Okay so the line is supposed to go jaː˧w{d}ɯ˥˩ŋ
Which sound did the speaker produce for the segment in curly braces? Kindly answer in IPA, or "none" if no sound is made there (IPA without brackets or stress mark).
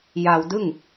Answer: d